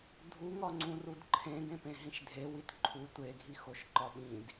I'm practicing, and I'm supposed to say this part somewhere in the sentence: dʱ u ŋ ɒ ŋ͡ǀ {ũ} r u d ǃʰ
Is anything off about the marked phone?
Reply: no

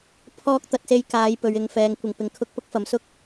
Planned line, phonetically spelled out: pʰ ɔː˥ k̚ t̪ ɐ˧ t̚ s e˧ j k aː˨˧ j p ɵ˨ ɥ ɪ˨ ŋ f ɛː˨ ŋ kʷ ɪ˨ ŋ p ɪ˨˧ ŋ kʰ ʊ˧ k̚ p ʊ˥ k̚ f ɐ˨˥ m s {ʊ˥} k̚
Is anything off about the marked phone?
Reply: no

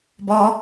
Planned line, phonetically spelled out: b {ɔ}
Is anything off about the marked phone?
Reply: no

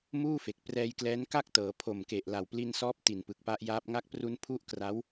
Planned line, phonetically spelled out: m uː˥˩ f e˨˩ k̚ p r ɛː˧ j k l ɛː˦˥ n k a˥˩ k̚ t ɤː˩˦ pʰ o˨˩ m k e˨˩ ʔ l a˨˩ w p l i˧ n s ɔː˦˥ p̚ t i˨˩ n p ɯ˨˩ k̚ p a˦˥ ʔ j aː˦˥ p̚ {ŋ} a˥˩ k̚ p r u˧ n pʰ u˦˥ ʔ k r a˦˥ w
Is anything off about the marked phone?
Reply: no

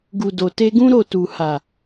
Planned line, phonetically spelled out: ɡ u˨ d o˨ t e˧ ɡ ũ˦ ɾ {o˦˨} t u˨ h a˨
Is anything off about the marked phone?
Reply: no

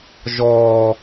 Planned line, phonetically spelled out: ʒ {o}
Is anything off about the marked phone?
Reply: yes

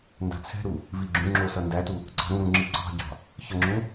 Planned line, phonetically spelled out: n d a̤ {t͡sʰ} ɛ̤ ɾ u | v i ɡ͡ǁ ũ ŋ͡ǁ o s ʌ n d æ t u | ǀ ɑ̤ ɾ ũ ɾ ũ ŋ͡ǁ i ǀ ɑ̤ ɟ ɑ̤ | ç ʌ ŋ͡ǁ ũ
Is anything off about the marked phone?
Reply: no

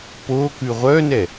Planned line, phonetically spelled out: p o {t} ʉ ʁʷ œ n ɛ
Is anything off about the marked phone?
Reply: yes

